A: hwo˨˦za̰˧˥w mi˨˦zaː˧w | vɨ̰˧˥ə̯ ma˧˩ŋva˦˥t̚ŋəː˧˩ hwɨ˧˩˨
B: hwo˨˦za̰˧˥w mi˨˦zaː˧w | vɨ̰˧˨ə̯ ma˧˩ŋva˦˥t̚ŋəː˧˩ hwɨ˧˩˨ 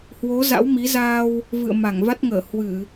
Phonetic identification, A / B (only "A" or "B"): B